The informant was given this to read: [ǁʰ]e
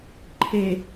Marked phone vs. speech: incorrect: ǃʰ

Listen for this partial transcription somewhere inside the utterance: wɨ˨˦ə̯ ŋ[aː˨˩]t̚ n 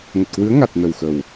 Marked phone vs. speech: incorrect: a˨˩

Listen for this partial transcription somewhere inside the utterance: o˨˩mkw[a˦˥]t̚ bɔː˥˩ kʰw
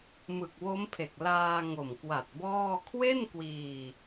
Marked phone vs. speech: incorrect: a˨˩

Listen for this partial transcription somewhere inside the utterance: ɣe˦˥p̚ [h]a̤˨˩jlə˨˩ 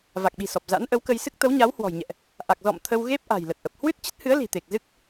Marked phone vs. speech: incorrect: ʔ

